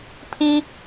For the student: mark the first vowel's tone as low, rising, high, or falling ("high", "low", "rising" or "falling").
high